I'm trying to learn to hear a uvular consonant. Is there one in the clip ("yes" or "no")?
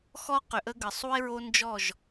yes